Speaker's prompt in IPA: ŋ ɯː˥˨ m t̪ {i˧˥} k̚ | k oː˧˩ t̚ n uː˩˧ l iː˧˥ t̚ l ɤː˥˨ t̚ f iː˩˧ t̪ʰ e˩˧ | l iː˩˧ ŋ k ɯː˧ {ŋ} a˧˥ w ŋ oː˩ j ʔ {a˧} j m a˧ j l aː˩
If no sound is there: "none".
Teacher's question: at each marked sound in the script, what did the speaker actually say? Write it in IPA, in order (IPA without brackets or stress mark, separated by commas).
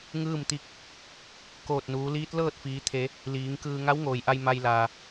i˧˥, ŋ, a˧